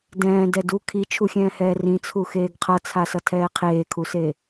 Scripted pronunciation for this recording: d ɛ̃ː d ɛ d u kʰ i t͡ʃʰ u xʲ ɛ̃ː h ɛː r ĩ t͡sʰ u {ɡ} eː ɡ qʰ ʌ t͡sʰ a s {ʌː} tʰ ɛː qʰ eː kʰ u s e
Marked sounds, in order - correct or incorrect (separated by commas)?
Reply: incorrect, incorrect